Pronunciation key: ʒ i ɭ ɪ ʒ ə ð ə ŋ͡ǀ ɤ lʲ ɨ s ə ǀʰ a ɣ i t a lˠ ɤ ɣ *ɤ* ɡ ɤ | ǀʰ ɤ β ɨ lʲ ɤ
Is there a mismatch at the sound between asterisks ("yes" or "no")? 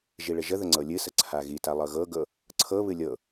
no